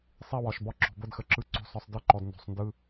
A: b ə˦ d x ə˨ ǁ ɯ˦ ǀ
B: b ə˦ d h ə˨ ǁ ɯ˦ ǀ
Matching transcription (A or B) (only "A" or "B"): A